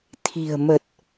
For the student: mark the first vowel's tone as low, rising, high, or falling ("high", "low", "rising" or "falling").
low